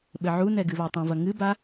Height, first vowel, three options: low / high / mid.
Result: mid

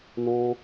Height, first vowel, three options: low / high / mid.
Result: mid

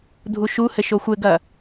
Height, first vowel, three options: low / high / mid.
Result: high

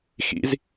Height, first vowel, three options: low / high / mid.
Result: high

